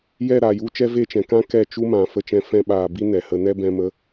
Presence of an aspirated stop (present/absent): absent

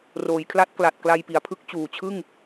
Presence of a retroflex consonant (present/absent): absent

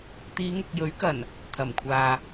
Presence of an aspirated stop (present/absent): present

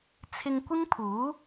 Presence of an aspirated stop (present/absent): present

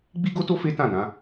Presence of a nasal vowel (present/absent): present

